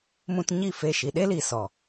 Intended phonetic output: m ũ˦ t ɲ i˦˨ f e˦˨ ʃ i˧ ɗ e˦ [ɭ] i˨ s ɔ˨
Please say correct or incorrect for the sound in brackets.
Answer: incorrect